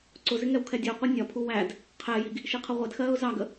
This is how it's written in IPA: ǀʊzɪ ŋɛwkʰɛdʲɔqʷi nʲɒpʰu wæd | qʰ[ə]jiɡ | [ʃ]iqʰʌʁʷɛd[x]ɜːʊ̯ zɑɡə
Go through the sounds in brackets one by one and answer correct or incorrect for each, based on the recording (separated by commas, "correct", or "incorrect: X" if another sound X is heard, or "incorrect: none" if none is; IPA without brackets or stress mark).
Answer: incorrect: ɛ, correct, correct